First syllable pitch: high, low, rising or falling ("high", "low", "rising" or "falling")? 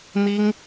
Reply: high